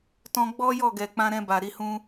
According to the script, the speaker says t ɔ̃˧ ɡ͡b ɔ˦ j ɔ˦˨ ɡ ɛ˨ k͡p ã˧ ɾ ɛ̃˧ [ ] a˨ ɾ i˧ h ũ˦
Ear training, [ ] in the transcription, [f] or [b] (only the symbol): b